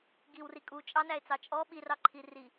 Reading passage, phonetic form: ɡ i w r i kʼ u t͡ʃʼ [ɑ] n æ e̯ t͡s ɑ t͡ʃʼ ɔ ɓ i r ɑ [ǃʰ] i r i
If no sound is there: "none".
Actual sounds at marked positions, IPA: ɑ, ǃʰ

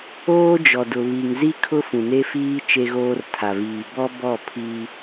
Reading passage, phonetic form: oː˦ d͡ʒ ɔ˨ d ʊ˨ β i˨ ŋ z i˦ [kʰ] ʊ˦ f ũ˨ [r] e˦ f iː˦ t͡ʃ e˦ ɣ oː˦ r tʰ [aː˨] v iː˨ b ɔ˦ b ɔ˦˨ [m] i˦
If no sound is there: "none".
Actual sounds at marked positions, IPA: kʰ, n, a˨, pʰ

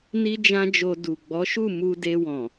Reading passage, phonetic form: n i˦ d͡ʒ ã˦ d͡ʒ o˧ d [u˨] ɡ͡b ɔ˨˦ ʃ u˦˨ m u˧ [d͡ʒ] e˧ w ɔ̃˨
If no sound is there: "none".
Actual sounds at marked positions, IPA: u˨, d

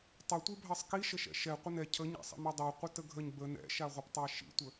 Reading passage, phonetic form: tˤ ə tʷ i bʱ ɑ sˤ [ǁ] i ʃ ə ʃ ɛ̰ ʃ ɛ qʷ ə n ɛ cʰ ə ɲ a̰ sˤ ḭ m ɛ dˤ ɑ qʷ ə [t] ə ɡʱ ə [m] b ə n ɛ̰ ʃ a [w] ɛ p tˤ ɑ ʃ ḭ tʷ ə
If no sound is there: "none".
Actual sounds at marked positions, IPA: k, t, ɲ, ʁʷ

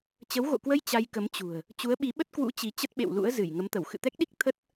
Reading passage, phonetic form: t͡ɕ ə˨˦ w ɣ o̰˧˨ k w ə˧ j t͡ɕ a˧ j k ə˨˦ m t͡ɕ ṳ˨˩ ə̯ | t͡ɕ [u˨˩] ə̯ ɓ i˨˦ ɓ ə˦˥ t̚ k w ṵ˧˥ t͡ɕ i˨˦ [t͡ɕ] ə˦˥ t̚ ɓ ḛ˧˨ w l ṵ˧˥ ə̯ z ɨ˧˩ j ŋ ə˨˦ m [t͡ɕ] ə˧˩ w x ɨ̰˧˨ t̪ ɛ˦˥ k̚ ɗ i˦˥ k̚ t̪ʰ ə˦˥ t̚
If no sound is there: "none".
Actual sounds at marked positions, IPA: u˨˦, t͡ɕ, t̪

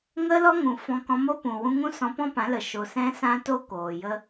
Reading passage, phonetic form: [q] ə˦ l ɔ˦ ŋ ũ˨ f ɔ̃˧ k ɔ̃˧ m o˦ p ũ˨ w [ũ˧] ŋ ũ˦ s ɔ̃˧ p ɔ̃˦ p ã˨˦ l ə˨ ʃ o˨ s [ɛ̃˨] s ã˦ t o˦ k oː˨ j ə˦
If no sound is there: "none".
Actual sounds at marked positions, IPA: ŋ, ũ˧, ɛ̃˧

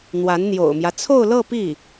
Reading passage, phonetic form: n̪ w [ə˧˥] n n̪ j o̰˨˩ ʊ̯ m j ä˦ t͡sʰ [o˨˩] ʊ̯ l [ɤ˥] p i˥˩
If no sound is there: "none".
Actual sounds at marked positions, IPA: a˧˥, o˥˧, ɤ˥˧

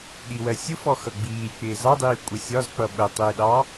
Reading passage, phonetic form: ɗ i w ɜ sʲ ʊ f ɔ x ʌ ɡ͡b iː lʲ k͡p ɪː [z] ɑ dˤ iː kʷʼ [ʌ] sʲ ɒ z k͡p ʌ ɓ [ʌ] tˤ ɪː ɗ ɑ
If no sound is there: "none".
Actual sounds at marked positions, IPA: z, ʌ, ə

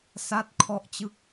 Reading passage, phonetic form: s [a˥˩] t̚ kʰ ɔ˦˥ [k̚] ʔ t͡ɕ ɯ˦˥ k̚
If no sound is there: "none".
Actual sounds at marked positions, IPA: a˥˩, none

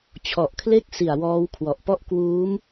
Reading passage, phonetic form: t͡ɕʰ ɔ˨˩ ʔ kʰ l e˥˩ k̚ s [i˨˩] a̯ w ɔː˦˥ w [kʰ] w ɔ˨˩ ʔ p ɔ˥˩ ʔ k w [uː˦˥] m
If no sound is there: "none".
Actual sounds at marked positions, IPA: i˨˩, kʰ, uː˦˥

